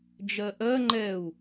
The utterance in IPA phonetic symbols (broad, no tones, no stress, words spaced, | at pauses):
d͡ʒɜʔɜ ŋ͡ǃɛu̯